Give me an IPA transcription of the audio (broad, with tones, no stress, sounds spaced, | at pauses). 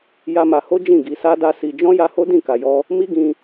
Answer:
j a˦ m a˧ h o˦ d͡ʒ ĩ˦˨ ɡ i˧ s a˦ d a˦ s i˧ d͡ʒ ɔ̃˦ j a˧ h o˦ d ĩ˦˨ k a˨ j ɔ˧ | m i˦ ɡ ĩ˧